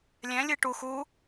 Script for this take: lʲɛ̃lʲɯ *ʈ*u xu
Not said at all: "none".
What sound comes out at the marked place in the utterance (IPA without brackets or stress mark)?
ʈ